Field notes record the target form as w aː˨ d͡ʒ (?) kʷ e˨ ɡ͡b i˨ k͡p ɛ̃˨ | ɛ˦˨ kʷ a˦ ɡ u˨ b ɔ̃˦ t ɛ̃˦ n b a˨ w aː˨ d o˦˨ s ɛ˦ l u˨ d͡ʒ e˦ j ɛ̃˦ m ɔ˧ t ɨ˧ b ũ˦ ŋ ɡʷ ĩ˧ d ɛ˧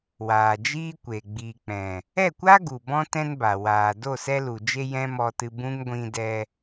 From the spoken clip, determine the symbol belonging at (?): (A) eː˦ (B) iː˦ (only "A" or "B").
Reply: B